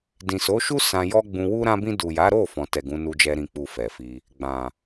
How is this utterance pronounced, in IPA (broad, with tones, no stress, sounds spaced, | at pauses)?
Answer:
d ĩ˨ s o˨˦ ʃ u˦ s ã˧ j ɔ˦ ɡ͡b ũ˧ w u˦ ɾ ã˧ b ĩ˧ d u˨ j a˨˦ ɾ o˦˨ f ɔ̃˨ t ɛ˨ ɡ ũ˨˦ n u˧ d͡ʒ ɛ˧ ɾ ĩ˨ k͡p u˨ f ɛ˨ f i˧ | ɡ͡b ã˨